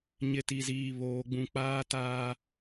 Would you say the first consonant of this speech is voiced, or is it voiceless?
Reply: voiced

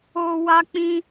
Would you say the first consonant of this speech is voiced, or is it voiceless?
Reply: voiced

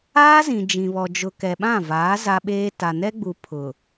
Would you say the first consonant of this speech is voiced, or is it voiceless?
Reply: voiced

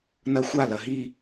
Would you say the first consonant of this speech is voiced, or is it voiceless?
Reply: voiced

